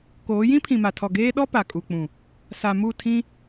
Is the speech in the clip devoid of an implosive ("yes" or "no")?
no